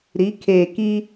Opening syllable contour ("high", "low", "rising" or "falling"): rising